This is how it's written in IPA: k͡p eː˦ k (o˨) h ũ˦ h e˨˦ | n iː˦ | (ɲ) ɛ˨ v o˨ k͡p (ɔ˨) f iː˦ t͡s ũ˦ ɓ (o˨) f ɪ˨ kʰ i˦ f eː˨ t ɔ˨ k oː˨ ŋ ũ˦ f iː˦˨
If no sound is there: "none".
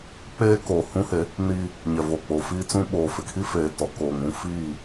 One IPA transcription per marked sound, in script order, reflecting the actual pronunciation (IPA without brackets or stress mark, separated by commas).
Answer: oː˨, ɲ, o˨, oː˨